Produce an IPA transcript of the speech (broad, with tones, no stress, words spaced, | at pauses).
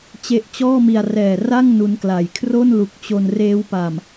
t͡ɕe˦˥ʔt͡ɕɔː˥˩mi˧a̯ rɛː˨˩ra˥˩ŋ nu˦˥nkla˨˩j kʰro˥˩nlu˨˩k̚t͡ɕo˧n reː˦˥wpa˨˩m